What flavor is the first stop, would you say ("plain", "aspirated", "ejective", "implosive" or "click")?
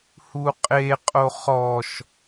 ejective